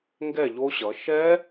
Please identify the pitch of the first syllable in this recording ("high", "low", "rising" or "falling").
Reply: falling